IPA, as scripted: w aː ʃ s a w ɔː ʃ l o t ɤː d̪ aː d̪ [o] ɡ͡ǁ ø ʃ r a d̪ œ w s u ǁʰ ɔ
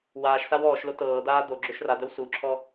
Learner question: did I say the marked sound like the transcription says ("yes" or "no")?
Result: yes